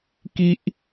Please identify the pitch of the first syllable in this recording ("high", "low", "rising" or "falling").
high